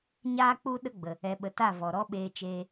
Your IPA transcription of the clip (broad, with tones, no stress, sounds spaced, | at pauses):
ɲ aː˦ k͡p u˦ ɗ ə˦ ɡ͡b ə˨ | ɛ˨ ɓ ə˨ t a˦˨ v ɔ˨ ɾ ɔ˦ ɓ eː˧ t͡ʃ eː˧